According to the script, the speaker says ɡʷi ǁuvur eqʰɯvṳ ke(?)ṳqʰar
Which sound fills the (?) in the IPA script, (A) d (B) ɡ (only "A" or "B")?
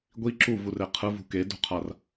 A